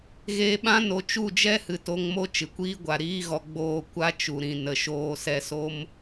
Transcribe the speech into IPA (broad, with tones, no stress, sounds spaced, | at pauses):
ɣ eː˧ ɓ ã˦ n o˧ t͡ʃ u˦˨ d͡ʒ ɛ˦ h ɨ˨ t o˧ ŋ m o˦ t͡ʃ ɨ˨ kʷ iː˦ ɡʷ a˨ ɾ iː˦ ɣ ɔ˧ ɡ͡b oː˦˨ kʷ a˦ t͡ʃ u˨ ɾ ĩ˨ n ə˨ ʃ oː˧ s ɛ˧ s o˦ m